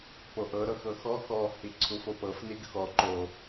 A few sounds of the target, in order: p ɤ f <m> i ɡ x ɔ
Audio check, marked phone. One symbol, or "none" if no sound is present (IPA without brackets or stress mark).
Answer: n